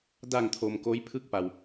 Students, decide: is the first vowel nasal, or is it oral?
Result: oral